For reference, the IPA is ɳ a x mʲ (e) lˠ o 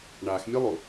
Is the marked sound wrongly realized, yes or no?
no